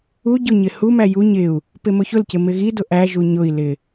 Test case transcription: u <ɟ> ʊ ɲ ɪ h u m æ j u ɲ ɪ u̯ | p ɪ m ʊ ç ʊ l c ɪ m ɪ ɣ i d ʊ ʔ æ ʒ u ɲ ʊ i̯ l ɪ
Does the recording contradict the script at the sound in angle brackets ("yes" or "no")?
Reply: no